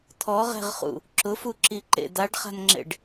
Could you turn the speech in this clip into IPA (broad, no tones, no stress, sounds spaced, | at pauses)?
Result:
t̪ʰ ɔ ʁ ɛ̤ ʁ χ ṵ | ǁ ʊ f u ǁ i ǃ ḛ d̪ a ɖ χ a̤ n ŋ͡ǁ ḛ ɖ